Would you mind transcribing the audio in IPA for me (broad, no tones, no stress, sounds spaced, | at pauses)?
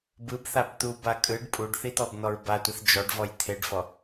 b ɯ b θ a b t̪ u b a kʼ ɯ ɖ pʼ u ɖ θ i t̪ ɔ b n̪ ɔ ɹ b a tʷ i θ d͡ʒ ɔ ɖ v ɔ j t̪ʰ e ɖ f ɔ